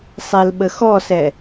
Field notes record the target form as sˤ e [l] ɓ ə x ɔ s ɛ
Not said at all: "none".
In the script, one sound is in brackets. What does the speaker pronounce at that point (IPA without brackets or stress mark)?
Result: l